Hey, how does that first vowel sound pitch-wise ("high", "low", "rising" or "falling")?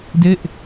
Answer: falling